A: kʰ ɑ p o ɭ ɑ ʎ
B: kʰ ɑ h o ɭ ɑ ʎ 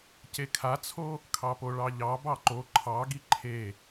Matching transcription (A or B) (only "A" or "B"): A